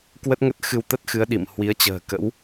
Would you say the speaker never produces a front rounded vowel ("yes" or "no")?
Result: yes